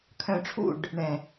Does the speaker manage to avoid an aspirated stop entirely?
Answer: no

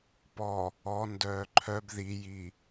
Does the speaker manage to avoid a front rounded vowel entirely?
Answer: no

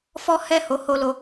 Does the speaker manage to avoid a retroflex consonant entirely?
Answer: yes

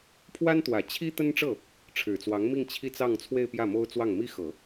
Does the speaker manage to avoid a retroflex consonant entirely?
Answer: no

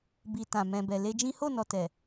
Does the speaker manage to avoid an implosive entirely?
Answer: yes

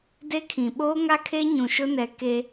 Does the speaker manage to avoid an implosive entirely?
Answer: no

